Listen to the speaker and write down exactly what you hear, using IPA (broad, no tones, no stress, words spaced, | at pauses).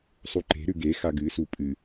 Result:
sˤuǃe̤ɾʉ ɡe xaɡɨsu pʼɨ